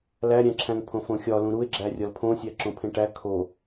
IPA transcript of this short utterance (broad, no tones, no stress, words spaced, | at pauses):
læɾʲæ̃ǁʰæ̃ŋ pʰõfõxʲɒlũ ɾue̯ɡ͡ǁæ rʲɒlpʰõsʲæ ǁõpʰẽʈæ kʰo